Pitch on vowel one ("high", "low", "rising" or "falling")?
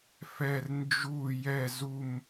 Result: falling